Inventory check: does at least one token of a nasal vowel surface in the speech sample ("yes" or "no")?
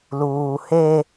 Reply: no